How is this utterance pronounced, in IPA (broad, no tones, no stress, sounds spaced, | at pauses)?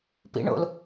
p ḭ ɳ o̰ l